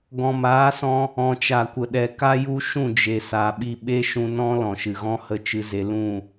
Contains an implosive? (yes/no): yes